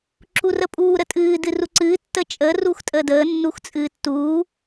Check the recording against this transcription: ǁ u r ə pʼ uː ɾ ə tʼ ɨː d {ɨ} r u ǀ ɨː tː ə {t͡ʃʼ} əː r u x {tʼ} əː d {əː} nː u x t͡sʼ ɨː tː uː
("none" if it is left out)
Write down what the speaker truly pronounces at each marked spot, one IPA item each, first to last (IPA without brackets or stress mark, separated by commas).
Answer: ɨ, t͡ʃʼ, tʼ, əː